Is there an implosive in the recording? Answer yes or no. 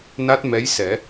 no